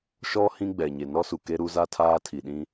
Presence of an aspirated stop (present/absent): present